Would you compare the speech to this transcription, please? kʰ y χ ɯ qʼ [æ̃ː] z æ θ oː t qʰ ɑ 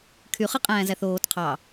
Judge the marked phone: correct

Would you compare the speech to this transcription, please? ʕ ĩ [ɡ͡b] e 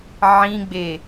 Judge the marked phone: correct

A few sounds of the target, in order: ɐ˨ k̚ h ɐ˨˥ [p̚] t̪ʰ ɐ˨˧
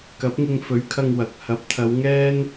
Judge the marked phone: correct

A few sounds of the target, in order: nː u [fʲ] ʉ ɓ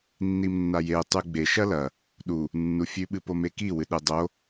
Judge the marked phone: correct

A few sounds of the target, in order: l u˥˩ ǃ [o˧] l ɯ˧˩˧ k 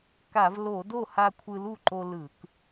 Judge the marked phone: correct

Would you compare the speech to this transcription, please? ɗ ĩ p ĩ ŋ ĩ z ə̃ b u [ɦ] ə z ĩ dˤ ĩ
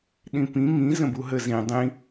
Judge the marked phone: correct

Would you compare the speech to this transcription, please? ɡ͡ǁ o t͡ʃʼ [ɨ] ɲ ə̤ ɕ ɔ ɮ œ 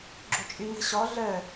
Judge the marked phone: incorrect: y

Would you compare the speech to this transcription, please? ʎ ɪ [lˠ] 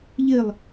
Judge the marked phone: correct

